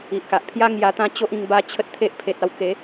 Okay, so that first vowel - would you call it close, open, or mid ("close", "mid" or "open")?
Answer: close